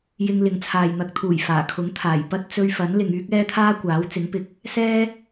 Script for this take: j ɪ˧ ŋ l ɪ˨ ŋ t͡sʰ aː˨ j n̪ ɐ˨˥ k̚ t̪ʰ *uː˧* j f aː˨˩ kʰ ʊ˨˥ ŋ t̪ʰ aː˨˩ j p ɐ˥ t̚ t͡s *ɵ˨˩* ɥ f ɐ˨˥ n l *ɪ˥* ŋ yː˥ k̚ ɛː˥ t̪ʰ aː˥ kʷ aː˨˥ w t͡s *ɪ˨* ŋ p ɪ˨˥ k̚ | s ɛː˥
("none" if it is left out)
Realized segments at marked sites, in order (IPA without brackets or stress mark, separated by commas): uː˨˩, ɵ˧, ɪ˨, ɪ˨˥